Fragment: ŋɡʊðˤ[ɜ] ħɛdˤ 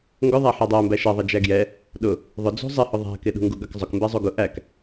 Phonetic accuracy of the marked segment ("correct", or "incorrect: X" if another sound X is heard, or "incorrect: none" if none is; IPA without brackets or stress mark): incorrect: æ